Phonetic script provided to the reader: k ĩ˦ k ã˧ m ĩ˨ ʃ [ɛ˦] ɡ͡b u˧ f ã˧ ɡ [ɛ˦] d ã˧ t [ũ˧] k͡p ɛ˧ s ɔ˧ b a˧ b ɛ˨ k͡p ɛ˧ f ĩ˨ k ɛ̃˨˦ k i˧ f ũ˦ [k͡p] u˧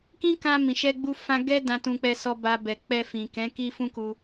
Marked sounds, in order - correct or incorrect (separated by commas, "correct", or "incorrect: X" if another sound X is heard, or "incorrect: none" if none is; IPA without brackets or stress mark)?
incorrect: ɛ˧, correct, correct, incorrect: k